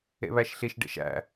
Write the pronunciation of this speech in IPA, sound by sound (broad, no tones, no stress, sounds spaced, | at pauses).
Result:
ḛ β æ ʃ ɬ i ʃ ɖ ḛ ʃ æ̰